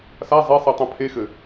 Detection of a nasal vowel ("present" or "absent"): present